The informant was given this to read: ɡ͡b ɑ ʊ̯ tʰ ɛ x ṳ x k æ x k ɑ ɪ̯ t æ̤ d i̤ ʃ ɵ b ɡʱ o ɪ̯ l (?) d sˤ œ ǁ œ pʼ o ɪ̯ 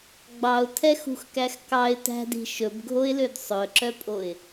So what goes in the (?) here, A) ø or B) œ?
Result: A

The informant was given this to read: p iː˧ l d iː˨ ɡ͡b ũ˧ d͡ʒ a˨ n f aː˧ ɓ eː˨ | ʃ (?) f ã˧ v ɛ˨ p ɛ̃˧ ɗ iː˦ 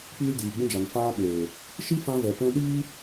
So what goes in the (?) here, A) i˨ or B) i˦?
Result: B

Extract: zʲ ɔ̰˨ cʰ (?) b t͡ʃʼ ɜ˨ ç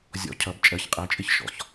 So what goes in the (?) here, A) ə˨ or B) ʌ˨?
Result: B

